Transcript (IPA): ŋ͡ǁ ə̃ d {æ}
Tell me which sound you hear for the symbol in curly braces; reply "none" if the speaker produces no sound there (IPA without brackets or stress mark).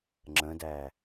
æ